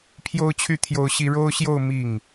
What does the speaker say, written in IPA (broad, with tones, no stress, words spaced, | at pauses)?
pʰjo˥ʊ̯t͡ɕʰy˥˩ t̪ʰjo˥ʊ̯ɕi˥ ɻo˥ʊ̯ɕjo˥˧ʊ̯ mi˥˩ŋ